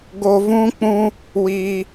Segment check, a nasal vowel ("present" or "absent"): present